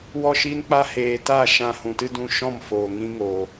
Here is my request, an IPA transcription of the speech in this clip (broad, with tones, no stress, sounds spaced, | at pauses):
w ɔ˦˨ ʃ iː˦ n k͡p a˦ h eː˨ t aː˦˨ ʃ ã˧ h ũ˨ t ɨ˦ d ũ˧ ʃ ɔ̃˦˨ m f oː˨ ŋ ĩ˦ ŋ oː˨